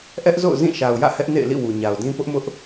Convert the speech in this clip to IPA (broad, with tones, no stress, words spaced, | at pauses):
ʔɛ˦ʔzo̰˦˨ʊ̯ zĩ˦˨ʃa˨ʊ̯jä̰˦˨ hɛ˦ʔnḛ˦˨ɪ̯lḭ˦˨ wu˨ɲa˨ʊ̯dĩ˦ pʊ˦ʔmʊ˦ʔ